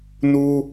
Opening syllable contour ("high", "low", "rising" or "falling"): high